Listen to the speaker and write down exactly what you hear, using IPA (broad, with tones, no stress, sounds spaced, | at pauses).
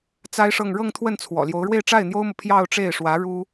t͡s a˥ ɪ̯ ʂ ɤ˥˧ ŋ ɻ ɤ˥˧ ŋ t̪ʰ w ə˥˩ n t͡sʰ w ɔ̰˨˩ l j o˧˥ ʊ̯ ɻ w e˥˧ ɪ̯ ʈ͡ʂ a˥˩ ɪ̯ n̪ j o˥ ʊ̯ m ɤ˨ pʰ j ɑ˥˧ ʊ̯ ʈ͡ʂ e˥˩ ɪ̯ ʂ w ä˧˥ ɻ u˥